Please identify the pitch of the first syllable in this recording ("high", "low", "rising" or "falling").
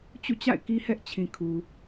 falling